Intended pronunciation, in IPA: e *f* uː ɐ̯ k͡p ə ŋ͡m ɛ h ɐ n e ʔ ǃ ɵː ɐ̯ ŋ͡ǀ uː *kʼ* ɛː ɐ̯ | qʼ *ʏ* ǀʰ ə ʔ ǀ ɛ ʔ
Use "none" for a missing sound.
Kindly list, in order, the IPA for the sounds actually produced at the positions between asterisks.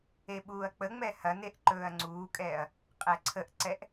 ɓ, kʼ, ɛ

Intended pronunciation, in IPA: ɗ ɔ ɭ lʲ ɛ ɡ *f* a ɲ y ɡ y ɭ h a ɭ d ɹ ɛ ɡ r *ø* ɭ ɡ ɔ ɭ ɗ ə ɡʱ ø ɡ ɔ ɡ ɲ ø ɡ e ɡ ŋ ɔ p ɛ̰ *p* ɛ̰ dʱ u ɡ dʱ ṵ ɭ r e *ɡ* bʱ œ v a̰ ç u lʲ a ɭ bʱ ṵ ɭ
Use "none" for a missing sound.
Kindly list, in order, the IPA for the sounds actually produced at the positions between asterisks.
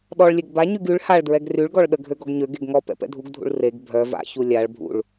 b, y, p, ɡ

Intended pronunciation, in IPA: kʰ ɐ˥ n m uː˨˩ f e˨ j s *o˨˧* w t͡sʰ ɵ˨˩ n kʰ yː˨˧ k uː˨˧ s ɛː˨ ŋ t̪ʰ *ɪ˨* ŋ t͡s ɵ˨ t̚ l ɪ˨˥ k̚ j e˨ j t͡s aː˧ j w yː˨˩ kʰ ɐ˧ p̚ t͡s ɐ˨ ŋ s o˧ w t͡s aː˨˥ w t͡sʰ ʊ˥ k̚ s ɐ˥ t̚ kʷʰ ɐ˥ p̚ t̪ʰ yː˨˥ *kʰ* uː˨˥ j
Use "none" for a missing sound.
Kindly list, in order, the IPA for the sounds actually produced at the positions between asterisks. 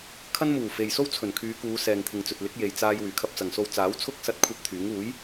o˥, ɪ˨, ŋ

